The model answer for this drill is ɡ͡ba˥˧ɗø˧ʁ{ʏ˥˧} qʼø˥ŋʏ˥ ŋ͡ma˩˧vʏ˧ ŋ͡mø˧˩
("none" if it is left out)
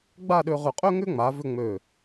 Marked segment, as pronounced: ʏ˧˩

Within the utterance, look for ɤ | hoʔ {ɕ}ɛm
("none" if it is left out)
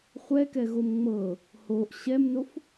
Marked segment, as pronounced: ɕ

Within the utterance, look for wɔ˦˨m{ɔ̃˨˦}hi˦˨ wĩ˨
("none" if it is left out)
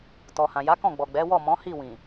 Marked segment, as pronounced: ɔ̃˨˦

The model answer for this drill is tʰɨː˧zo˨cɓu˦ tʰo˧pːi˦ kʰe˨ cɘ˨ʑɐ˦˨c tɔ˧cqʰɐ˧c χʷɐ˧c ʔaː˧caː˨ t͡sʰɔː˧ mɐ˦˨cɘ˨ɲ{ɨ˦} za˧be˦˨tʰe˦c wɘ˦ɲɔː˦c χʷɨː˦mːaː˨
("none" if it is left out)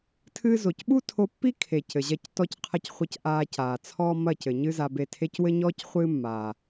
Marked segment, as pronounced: ɨ˦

